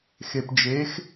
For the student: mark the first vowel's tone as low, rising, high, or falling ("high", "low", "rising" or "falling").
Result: low